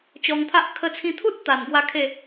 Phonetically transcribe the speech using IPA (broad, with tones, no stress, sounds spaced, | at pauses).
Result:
t͡ɕ ɔ˧ ŋ t̪ʰ a˦ ʔ kʰ ə˦ t͡sʰ ĩ˦ t̪ʰ u˦ t̚ t̪ a˨˩ n ɡ w a˧ kʰ e˥˧